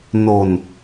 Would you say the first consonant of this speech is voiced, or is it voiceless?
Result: voiced